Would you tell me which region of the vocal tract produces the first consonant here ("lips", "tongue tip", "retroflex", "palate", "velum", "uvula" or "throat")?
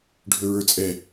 retroflex